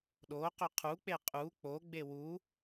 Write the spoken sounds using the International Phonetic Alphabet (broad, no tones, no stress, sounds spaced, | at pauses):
ɗ o q ʏ qʰ u k͡p e qʼ u k͡p o ɡ͡b e w u